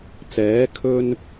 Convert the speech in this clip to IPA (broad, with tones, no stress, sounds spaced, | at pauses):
t͡s ɛː˨˥ kʰ ɵ˧ n